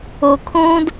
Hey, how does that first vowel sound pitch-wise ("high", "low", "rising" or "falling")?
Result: low